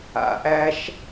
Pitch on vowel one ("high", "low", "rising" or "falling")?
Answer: low